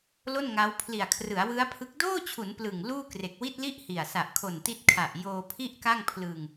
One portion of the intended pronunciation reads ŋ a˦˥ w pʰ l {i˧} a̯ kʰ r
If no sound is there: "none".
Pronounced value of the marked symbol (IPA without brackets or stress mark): i˨˩